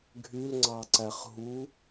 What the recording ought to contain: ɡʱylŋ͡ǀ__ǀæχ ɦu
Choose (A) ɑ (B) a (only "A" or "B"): A